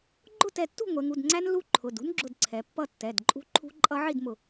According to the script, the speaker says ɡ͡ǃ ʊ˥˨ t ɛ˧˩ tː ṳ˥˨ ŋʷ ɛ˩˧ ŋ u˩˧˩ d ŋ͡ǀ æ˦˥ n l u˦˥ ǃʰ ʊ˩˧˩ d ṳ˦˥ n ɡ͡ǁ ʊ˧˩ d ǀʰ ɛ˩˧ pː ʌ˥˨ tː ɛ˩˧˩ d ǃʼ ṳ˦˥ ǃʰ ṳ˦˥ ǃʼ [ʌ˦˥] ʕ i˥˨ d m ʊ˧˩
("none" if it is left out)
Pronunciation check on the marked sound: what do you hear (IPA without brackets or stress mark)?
ʌ˦˥